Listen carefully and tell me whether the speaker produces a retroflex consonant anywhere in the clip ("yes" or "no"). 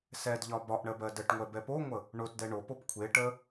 yes